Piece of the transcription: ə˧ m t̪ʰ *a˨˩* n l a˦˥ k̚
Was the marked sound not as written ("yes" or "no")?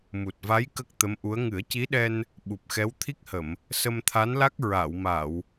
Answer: yes